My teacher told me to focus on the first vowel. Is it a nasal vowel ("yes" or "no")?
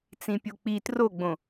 yes